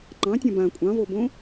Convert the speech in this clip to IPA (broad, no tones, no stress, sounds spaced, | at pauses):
ŋ͡ǃ ɑ̃ tʲ ã b ã kʷʼ ɑ̃ v o b õ